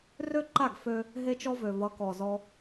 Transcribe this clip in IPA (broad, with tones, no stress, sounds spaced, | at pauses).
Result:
r ø˦ ǃ a˦˨ ɡ f ø˦ | ɦ e˦ t͡ʃ ɔ˦ v ø˨ v ʌ˨˦ k ɔ˨ z ɔ˧